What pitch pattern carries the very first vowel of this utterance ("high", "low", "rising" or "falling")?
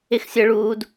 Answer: high